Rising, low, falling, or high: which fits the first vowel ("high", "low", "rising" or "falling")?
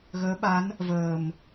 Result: rising